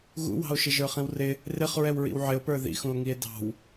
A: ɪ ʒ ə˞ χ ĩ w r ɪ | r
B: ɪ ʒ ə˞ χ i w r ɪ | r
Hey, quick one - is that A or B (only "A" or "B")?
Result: A